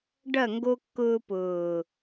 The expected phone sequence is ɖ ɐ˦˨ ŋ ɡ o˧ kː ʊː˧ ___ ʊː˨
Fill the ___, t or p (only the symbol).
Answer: p